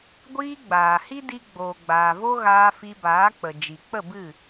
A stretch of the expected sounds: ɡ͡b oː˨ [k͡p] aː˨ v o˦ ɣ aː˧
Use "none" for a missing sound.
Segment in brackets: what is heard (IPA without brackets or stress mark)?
ɡ͡b